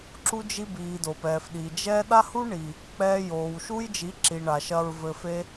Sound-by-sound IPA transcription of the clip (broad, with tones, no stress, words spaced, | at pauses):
ǁu˧d͡ʒi˧ biː˨do˨pɛː˨fɗiː˨ d͡ʒɛ˧ ɗa˦hu˦ɳi˨ | k͡pɛː˧joː˨wʃu˦j d͡ʒi˨˦ǁi˨ɳa˨ ʃɐː˦ɹvɘ˦ fe˦